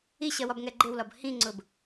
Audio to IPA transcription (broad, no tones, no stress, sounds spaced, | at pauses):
i ɕ ɜ w ɒ b ŋ ɛ ɡ͡ǃ ɪ w l ɒ b h ĩ ŋ͡ǀ ʊ b